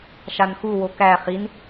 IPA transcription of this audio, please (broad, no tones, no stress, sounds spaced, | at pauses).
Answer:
ʃ a n x u w o k æ χ i n